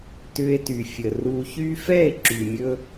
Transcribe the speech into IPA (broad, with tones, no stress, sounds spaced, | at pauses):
t ʏ˧ e̯ t y˨ fʲ ə˨ r u˧ ç y˦ f ɛ˦˨ e̯ ǁ y˨ mʲ ɵ˧